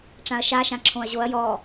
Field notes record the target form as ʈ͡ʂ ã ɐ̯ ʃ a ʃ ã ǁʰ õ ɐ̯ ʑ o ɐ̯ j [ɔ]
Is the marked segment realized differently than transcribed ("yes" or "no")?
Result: no